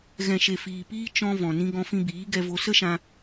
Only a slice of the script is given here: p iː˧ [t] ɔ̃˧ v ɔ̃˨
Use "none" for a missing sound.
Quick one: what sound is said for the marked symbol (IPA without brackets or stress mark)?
t͡ʃ